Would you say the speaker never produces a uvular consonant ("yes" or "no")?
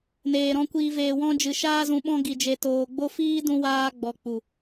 yes